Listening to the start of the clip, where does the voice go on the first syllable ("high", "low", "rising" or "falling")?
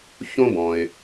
high